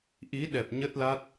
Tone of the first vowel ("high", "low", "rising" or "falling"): rising